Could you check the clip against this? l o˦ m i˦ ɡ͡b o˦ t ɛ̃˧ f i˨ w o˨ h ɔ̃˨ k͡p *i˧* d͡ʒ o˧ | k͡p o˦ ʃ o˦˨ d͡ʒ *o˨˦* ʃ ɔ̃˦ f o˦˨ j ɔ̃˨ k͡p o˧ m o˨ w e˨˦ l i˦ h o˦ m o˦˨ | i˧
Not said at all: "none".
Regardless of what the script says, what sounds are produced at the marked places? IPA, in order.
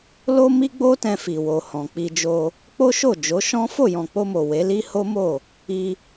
i˧, o˨˦

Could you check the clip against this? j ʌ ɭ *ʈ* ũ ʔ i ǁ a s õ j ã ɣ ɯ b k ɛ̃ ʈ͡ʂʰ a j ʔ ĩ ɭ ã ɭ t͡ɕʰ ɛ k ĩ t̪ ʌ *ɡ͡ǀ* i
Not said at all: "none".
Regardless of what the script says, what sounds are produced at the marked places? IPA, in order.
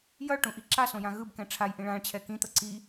ʈ, ǀ

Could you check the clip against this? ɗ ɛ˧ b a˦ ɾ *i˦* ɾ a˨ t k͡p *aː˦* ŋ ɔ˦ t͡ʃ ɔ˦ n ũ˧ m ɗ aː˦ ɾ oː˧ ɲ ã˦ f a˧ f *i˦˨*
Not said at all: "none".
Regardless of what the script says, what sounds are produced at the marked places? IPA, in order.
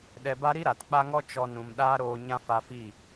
i˦, a˦, i˦˨

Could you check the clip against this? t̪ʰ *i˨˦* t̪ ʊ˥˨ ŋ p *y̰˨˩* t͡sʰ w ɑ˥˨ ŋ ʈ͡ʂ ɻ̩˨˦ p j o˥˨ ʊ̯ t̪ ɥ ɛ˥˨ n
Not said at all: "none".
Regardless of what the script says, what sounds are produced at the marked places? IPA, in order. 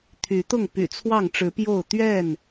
y˨˦, y̰˨˩

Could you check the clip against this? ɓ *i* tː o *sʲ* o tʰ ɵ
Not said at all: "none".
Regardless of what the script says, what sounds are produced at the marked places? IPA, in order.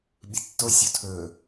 i, sʲ

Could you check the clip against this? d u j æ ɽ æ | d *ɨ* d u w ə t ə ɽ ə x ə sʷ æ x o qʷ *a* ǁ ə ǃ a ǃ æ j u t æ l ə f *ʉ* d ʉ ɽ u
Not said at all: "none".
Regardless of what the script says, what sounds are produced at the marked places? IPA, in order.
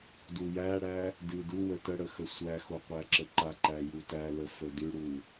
ɨ, æ, ə

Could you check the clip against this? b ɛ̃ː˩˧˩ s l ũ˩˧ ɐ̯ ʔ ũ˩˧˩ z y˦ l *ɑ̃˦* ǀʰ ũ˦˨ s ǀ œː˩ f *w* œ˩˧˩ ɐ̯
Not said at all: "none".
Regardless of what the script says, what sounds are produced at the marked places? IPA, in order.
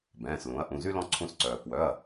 ɔ̃˦, w

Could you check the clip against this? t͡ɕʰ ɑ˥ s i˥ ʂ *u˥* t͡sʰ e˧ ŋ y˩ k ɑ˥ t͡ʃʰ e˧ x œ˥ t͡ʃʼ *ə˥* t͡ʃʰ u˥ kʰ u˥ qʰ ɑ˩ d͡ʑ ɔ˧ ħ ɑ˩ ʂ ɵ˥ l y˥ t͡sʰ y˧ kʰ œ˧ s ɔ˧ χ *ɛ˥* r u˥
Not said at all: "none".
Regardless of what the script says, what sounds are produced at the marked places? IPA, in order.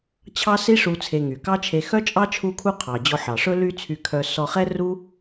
u˧, ɑ˥, ɛ˥

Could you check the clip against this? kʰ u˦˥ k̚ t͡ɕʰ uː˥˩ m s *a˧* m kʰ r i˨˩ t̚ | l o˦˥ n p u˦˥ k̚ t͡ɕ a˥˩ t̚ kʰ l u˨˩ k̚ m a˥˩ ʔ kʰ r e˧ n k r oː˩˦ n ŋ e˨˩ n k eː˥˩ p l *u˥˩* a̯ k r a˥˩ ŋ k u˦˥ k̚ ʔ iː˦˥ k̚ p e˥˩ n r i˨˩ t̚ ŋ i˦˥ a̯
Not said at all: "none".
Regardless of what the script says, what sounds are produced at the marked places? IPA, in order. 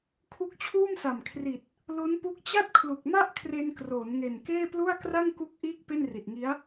a˨˩, u˥˩

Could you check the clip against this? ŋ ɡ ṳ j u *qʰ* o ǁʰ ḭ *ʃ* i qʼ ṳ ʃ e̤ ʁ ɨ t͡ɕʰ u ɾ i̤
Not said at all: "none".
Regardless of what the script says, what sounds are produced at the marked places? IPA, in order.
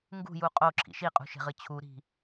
qʼ, ʃ

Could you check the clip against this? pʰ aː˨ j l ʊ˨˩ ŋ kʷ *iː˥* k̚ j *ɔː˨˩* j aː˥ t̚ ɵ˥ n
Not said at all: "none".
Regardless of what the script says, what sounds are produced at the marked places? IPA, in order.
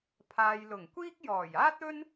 iː˥, ɔː˨˩

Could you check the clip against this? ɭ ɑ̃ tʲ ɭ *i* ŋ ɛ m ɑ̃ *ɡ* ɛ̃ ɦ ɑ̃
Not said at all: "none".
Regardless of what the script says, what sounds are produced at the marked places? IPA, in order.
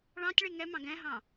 i, ɡ

